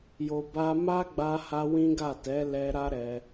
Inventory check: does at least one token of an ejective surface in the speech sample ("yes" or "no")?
no